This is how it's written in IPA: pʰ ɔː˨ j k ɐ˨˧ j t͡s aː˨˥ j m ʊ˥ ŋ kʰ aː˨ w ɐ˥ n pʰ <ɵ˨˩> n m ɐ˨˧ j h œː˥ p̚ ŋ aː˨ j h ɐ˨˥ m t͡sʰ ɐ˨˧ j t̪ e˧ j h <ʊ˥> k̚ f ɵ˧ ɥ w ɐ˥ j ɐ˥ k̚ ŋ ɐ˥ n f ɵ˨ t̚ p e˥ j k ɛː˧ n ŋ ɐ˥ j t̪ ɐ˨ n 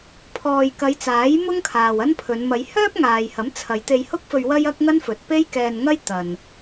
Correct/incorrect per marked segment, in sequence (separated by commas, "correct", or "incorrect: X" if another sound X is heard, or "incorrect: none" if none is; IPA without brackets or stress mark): incorrect: ɵ˨˧, correct